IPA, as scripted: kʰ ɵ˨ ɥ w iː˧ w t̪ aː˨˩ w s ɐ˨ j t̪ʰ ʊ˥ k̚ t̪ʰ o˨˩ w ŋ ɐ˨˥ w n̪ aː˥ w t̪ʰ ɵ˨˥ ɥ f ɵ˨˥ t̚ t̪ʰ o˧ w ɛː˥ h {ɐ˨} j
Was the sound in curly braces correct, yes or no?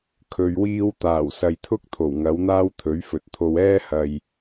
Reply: yes